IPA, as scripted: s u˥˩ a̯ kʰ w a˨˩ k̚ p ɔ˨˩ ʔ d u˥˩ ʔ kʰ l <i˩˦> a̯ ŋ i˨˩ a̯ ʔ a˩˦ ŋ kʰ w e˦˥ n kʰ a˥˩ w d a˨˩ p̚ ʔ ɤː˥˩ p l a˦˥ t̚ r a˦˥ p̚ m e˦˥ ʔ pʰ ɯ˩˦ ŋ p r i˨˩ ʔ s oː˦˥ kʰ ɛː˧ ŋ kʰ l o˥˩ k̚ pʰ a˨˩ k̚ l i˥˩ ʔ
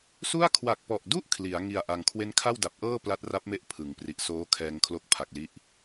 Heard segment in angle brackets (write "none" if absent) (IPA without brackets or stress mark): i˩˦